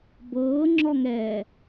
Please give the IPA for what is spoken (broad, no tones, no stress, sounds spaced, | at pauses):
b ɤː ŋ͡ǁ ɔ ŋ ɛː